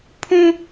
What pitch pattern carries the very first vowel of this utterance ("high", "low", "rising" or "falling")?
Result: high